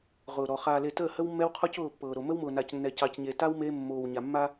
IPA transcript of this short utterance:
ʁ ʊː˨ ɾ ɔ˨ χ aː˨ l e˨ t əː˦˨ h ə˦ w mː ɛ˦ w qʰ ɔ˦ c ʊː˦˨ pː ɤː˨ ɾ o˨ m ə˦ w m ʊː˨ n a˨ c nː ɛ˨ c ɑ˨ c ɲ e˨ t a˦ w m e˦ mː oː˨ w ɲ a˨ mː a˦

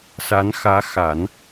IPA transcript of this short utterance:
s a˧˥ n x ä˧˥ x a˨˩˦ n

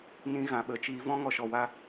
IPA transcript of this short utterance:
n ĩ˦ ɣ ã˨ ɓ ə˨ t͡ʃ iː˦ v ɔ̃˦ ŋ ɔ˧ ʃ ɔ˧ w a˦

